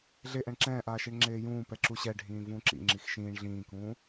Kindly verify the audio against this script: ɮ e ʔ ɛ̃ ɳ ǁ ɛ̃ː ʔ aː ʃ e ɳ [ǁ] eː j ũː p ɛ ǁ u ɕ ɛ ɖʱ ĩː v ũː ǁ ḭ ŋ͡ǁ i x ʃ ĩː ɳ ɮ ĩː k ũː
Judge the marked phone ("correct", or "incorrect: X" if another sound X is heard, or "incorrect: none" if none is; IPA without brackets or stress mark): incorrect: ŋ͡ǁ